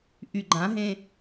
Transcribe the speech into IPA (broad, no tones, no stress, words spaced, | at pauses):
ʔyɡ͡ǃãɦẽ